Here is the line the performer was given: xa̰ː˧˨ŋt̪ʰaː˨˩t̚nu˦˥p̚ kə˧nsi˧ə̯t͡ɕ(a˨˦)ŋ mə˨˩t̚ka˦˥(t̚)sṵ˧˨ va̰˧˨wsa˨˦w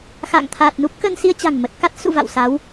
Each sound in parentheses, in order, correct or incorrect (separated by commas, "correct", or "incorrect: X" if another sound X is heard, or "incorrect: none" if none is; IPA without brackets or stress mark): incorrect: a̤˨˩, correct